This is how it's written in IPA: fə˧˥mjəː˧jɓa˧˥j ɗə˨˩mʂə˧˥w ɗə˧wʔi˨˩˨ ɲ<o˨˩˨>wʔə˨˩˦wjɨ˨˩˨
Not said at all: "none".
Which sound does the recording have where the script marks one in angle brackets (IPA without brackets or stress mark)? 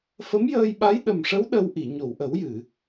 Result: o˨˩˨